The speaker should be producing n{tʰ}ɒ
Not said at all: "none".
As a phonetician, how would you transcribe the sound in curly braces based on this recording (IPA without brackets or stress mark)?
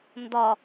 d